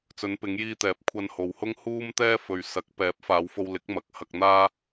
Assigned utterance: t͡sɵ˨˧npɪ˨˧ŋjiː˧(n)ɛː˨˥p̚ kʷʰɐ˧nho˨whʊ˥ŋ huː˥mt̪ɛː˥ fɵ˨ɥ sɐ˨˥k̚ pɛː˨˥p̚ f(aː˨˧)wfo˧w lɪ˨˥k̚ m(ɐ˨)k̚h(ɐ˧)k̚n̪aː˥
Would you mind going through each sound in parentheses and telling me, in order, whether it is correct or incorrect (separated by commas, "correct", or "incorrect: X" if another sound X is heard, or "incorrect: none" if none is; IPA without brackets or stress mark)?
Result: incorrect: t̪, correct, incorrect: ɐ˨˥, correct